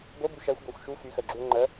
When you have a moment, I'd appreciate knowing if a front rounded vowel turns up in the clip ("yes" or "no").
yes